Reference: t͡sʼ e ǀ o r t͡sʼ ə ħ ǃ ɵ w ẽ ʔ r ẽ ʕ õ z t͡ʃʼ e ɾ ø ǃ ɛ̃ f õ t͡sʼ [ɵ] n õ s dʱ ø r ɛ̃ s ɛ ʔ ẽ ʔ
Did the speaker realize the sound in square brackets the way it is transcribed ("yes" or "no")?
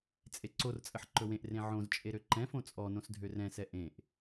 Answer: no